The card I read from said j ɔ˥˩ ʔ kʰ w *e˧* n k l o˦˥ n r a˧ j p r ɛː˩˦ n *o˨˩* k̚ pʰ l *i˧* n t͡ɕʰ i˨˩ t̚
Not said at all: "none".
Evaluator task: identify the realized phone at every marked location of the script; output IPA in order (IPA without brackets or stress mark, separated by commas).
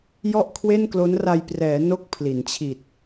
e˥˩, o˥˩, i˩˦